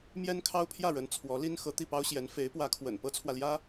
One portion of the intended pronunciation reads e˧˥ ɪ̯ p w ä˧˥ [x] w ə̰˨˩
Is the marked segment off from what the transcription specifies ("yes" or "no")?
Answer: yes